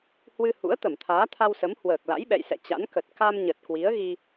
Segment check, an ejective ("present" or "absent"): absent